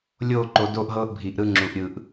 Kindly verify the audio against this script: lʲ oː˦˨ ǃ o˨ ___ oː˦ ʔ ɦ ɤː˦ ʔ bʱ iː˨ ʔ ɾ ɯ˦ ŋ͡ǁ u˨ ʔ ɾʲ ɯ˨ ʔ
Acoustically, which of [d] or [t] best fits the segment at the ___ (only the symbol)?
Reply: d